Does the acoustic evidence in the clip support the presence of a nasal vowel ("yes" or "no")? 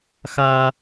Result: no